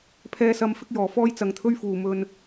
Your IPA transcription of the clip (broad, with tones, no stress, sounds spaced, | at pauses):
pʰ ɛː˥ s ɐ˥ m f ɪ˥ k̚ j ɔː˨ f ɔː˥ j t͡s ɐ˨ ŋ t̪ʰ ɵ˥ ɥ f uː˨ m ɵ˧ n